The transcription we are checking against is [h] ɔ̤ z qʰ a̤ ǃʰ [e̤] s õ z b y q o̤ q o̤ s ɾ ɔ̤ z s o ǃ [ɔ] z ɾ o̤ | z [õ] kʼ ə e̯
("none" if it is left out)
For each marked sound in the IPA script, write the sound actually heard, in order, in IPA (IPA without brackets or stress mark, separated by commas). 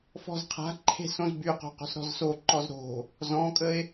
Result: f, e̤, ɔ, ɔ̃